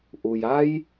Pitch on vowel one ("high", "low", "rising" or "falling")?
low